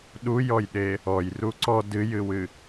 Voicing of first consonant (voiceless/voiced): voiced